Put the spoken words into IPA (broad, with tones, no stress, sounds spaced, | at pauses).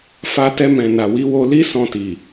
f a˧ t ɛ˧ m ɛ̃˨ n a˨ w i˨˦ w o˧ l i˦ s ɔ̃˧ t i˨